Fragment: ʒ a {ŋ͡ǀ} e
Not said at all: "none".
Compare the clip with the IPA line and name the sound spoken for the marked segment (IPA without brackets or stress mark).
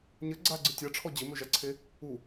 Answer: ǀʰ